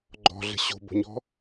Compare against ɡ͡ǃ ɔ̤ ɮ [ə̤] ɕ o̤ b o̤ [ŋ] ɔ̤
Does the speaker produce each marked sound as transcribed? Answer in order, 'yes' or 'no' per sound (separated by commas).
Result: yes, no